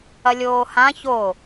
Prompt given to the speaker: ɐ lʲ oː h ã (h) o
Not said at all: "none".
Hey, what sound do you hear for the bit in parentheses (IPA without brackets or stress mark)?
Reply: ç